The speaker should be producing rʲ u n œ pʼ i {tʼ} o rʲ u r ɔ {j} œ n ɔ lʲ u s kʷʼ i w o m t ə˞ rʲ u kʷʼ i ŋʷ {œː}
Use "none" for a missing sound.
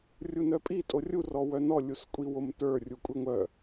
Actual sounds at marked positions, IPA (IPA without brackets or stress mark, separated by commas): tʼ, w, œ